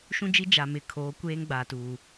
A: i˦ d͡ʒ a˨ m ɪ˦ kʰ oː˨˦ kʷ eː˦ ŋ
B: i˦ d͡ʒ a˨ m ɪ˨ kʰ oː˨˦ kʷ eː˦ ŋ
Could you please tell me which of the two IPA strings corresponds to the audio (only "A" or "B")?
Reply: B